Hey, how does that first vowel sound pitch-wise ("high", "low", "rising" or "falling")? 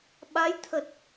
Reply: rising